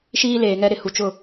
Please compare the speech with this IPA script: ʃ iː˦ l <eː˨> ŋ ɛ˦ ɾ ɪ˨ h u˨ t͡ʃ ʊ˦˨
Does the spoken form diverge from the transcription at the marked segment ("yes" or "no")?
no